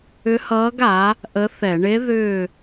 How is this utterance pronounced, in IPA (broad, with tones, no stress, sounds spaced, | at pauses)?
ʏ˧˥ h ʌː˧˥ ɡ a˩˥ | ʔ ə˧˥ θ ɛ˧˩˧ ɳ e˧˥ ð ʏː˦˨